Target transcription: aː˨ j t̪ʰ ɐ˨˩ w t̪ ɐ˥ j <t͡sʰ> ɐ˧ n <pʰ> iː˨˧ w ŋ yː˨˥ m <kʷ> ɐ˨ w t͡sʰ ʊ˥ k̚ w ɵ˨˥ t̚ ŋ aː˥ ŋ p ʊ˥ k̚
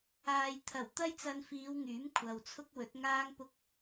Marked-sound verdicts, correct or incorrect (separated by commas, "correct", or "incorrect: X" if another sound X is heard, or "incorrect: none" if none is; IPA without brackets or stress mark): incorrect: t͡s, incorrect: f, incorrect: kʷʰ